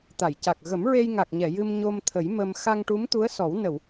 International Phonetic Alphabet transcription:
t̪ a˨˩˨ j c a˨˩ k̚ ɣ ə˨˩˦ m ɹ e˧ j ŋ a˨˩ k̚ ɲ ɛ˨˩˨ j ɨ˧ m ɲ o˧ m t̪ʰ ə˨˩˦ j m ə˧ m x a˧ ŋ ʈ u˧˥ m t̪ u˧˥ ə̯ s ɔ˨˩˦ w n ə˨˩˨ w

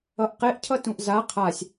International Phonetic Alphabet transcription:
ʌ ʔ q e ʔ cʰ ʌ t ũ ʔ z a qʰ a sʲ

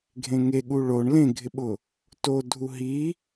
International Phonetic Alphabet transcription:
ɡʱ ẽ ŋ e ɠ u ɭ o ɳ l ẽ ɡʱ ɪ ɓ ʊ | t o dʱ u ɦ i

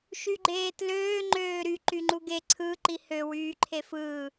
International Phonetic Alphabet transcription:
ʃ y ɡ͡ǃ eː t l øː ŋ͡ǃ øː ɾ y ǃ y ŋ͡ǃ u ɡ e ǀʰ ɯ ǃ i h ø w yː ǃʰ e f ɯː

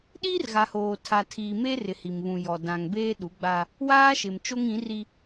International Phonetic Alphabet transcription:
ɗ iː˦ r ɣ a˨ h oː˨ tʰ a˨ tʰ iː˨ m eː˦ r ɪ˨ h i˨ m β ũ˨ j ɔ˨ d ã˨ ŋ b eː˦ ɗ u˨˦ ɡ͡b a˦ | w aː˦ ʃ ɪ˨ m t͡ʃ o˦ ŋ ĩ˨˦ r i˦

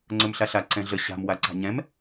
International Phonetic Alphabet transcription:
ŋ͡ǀ ɵ m ɬ a ɬ a ǀ ɛ̃ ɮ ə ɕ a̤ m w a ǀ a̤ ɲ ɛ̃ m

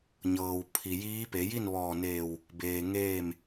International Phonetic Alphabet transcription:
ɲ ɤː˩ w pʰ i˩ j iː˧˥ p e˩˧ j i˥˨ n ʋ ɔː˧˩ n eː˧˩ w | b eː˩ ŋ eː˥˨ m

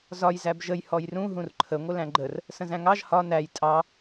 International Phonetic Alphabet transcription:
z ɒ j z æ b ʒ ə j h ɔ j r ũ ɦ ũ r ǃʰ ə ŋʷ ə l æ̃ ɡ͡ǃ ə r | s ə̃ z æ̃ ŋ ɑ ʒ h ɒ n æ j tʼ ɑ

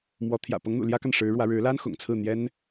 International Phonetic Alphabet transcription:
m w ɔ˧˥ t̪ʰ j ä̰˨˩ p ɤ˧˥ ŋ n̪ ṵ˨˩ l j ä˥ k a˨ n ʂ ɻ̩˧˥ ɻ w ä˧˥ ɻ ɻ̩˧˥ l a˥ n x ʊ̰˨˩ ŋ t͡sʰ ɹ̩˥˩ n̪ j ɛ˥ n

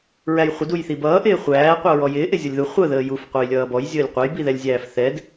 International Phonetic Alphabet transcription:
ɹ æ j χʷ ɪ d u j θ i b ʌː ʔ ɪː χʷ æː qʷ ʌ ɹ ɔ j ɪː ʔ ɪ zʲ ʌ lʲ ð u χʷ ə ð əː j u f qʷ æ j lʲ ʌː b ɔ j zʲ əː lʲ qʷ ɛ j b i ð ɛ lʲ zʲ æː f θ ɛ d

